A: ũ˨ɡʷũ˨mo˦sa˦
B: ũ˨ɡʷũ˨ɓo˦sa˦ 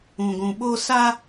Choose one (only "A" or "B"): B